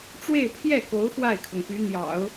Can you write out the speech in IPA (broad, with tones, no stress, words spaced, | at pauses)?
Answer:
ʈ͡ʂwe˥˧ɪ̯pʰjɛ˥˩ko˧˥ʊ̯ xwa˥˩ɪ̯kʰɤ˩ŋpy˧˥ n̪jɑ̰˨˩˦ʊ̯